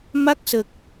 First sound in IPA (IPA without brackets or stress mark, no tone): m